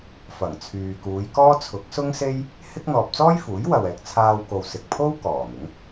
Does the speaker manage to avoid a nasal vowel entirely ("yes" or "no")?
yes